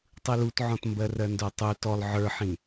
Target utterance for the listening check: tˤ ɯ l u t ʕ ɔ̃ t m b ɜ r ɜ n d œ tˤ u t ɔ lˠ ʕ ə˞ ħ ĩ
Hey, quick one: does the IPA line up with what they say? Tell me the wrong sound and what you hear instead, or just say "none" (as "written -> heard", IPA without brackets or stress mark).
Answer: none